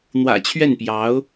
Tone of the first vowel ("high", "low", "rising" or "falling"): low